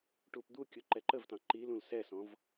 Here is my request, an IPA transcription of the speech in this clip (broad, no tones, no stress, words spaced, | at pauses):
ʈupd̪ukʲu ǃɛǃəvtɑ̃ ǃilũl sɛsɔ̃v